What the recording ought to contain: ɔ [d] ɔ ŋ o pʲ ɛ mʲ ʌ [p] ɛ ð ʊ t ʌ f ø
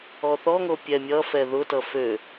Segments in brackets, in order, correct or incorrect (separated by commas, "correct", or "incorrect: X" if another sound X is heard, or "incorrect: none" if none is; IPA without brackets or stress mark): incorrect: θ, incorrect: f